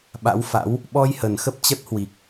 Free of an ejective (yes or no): yes